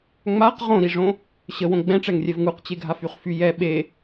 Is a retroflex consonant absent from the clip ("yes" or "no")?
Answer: no